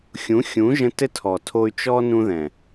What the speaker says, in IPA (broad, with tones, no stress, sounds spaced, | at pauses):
xʲ ũ˨˦ xʲ ũ˨˦ ʒ ə̃˧ t ɘ˦ tʰ ɔː˨ tʰ oː˧ y̯ t͡ʃ ɔ˧ n ũ˧ ð ɛ̃˨